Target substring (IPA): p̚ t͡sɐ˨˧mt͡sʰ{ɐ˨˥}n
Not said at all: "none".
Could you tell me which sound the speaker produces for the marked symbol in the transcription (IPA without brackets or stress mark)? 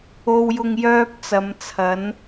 ɐ˨˥